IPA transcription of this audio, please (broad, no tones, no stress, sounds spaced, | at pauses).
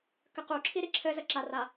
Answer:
k ə q u ǁʰ i ɾ i ǁʰ ɘ z ə ǁ a r a